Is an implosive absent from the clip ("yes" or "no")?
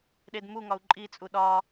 no